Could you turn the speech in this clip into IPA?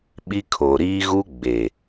ɓ i˦ kʰ oː˨ ɾ iː˦ ɣ u˦ ɡ͡b e˨

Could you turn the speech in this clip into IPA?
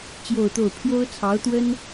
t͡ɕ j o˥˧ ʊ̯ t̪ o˥˩ ʊ̯ pʰ j o˥ ʊ̯ t͡sʰ ɑ˧˥ ʊ̯ t̪ w ə˥ n

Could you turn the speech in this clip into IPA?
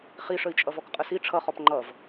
χ i ʂ ə i̯ t͡ʃʼ ʌ v ɔ k qʼ ə s i ʈ͡ʂʰ ʌ χ ɔ p ŋ͡ǃ ʌ v

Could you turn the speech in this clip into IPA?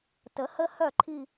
t ə˨˥ h ə˥˧ h œ˥˩ ǃʰ i˥˧

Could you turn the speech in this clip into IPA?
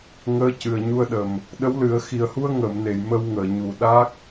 ŋ əː˧˥ c ɨ˨˩ ə̯ ɲ u˧ ə̯ ɗ ə˨˩ m | ɗ ə˧˥ w l ɨ˨˩˦ ə̯ x i˨˩ ə̯ h u˧ ə̯ ŋ əː˨˩˨ m n e˨˩˨ j m ə˧ w ŋ əː˨˩˨ ɲ u˨˩ ɗ a˦˥ k̚

